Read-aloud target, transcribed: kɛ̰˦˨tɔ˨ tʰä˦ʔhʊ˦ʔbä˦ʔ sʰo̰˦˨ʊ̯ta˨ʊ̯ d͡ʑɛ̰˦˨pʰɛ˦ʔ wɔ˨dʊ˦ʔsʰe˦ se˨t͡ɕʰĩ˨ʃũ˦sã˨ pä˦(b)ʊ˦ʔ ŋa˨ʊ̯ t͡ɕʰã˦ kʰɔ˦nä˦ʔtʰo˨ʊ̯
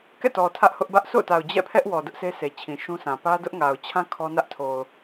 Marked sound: incorrect: d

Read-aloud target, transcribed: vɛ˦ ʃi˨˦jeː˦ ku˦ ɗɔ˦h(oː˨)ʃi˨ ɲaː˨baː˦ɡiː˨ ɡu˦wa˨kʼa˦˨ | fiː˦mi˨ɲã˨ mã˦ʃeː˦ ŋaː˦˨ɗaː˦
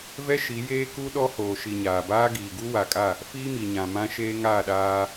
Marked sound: correct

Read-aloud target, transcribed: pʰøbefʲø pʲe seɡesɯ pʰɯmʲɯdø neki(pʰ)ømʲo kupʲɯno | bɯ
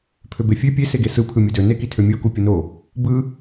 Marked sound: incorrect: tʰ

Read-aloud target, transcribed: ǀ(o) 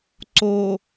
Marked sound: correct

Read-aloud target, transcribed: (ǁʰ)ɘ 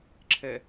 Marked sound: correct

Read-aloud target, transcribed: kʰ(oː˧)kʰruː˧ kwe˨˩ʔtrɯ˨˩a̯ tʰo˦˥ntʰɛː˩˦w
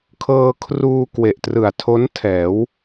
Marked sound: incorrect: ɤː˧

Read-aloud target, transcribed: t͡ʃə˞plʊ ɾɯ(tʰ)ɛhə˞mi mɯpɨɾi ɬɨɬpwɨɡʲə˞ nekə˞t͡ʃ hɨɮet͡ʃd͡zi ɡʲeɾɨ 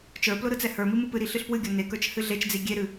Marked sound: incorrect: t͡s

